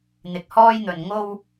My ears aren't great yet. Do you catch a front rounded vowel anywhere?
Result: no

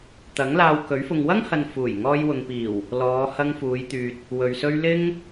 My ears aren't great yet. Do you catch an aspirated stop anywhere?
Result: no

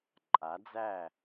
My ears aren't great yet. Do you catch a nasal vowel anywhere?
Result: no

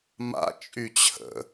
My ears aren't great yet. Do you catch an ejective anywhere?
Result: yes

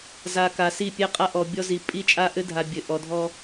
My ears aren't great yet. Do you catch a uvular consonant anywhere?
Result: yes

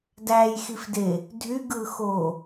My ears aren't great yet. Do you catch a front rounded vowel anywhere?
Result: yes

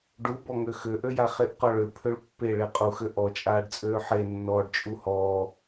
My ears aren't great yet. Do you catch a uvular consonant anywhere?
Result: yes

